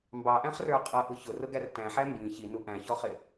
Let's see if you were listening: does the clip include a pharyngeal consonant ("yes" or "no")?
yes